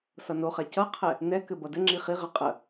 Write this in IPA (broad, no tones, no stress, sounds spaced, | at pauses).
s ʌ n o χ ɛ c ʌ qʰ ɛ | n ɛ k ɘ b ʌ d ɘ ŋ͡ǁ i χ i ʁ ɛ qʼ ə